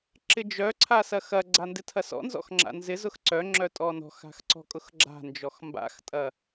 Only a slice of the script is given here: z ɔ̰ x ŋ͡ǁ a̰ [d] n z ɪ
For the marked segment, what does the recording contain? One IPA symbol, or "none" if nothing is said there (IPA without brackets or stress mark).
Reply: none